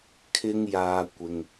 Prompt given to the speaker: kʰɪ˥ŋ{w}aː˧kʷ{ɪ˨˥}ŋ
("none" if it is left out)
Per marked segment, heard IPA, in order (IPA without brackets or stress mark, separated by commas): j, ɪ˨